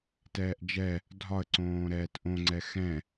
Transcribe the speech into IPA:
tɛːʔd͡ʒɛ | dʱɒə̯ǀõː ɾɛːtʔõŋ͡ǀɛ xɛ̃

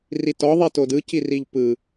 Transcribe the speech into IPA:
ritɔ ðˤitodɯ ciriʎpɯ

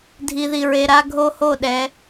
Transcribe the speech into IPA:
dʱi˨ði˨ɹe˨ ɾa˦ɡʱo˦ho˦˨ɗɛ˨˦

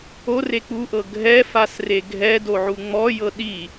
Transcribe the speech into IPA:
ore k͡puʔɤ ɡʱɛfasre ɡʱɛdoʕu ŋ͡mɔjɤ ɗi

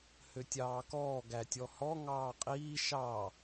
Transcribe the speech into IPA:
høtʲɑːkɔː ɡætʲɔhɔ ŋɑːqʼiː ʃɑ

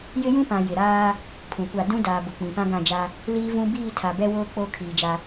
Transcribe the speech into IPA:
jɪ˦jũ˦pã˨ jɪ˨ɾaː˦ | pʰũ˨kʷa˦˨ dũ˦ daː˨bʊ˨ k͡pĩ˨ pã˦ɡã˦˨d͡ʒa˦ | liː˦vũ˦ biː˦˨tʰa˨bɛ˦woː˦ k͡po˦˨ kʰiː˨d͡ʒa˦

